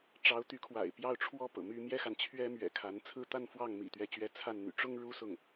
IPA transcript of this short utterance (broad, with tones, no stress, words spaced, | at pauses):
ʈ͡ʂɑ˧˥ʊ̯t̪y˧˥kʰwa̰˨˩ɪ̯ pjɑ˥˩ʊ̯ʈ͡ʂʰwɔ˥ pɤ̰˨˩my˥ mjɛ˥xa˨nt͡ɕʰɥɛ˥ mɥɛ̰˨˩kʰa˧˥nt͡sʰɹ̩˥ t̪a˥˧nfwɑ˥˩ŋ mḭ˨˩t̪ɥɛ˧˥t͡ɕɥɛ˧˥ t͡sʰa˥˩nn̪y̰˨˩ ʈ͡ʂʊ˥ŋ ɻu˥sʊ˥˩ŋ